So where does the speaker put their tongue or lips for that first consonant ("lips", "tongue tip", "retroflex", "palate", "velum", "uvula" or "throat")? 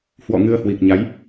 throat